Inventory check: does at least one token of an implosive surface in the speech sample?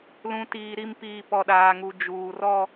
yes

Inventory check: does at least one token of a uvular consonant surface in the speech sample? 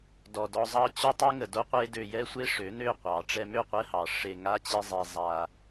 yes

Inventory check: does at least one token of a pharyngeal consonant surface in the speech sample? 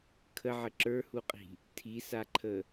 yes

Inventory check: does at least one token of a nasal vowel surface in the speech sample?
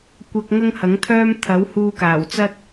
no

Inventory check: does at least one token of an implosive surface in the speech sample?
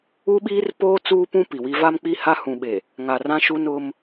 yes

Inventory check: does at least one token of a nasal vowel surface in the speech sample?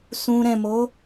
yes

